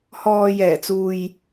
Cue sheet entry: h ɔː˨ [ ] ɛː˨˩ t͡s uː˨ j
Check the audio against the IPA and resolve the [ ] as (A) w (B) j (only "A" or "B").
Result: B